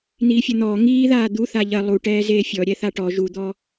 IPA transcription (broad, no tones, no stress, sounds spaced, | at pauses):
n̪ iː fʲ ɐ n̪ ɔː ŋ iː ð aː d̪ u θ a ʎ ɐ lˠ u ʈ ɛː z eː fʲ ɔ ɾʲ ɛ θ a ʈ ɔ ʒ u d̪ ɔ